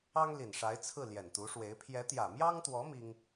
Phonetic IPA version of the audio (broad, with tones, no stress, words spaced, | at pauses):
ɑ˥ŋli˨˩n ʂa˧˥ɪ̯ t͡sʰɹ̩˥˩ ljɛ˨˩nt̪u˧˥ʂwe˧˥ɪ̯ pʰjɛ˧˥t̪jä˨˩mjɑ˥ŋt̪wɔ˧˥ mi˥ŋ